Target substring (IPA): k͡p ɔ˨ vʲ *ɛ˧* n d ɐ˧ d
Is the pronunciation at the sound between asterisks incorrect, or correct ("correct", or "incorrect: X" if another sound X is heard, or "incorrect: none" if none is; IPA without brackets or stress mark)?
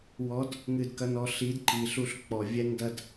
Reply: correct